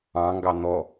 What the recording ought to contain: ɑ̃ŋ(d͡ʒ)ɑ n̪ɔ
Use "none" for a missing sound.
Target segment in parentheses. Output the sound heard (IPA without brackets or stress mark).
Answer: ɡ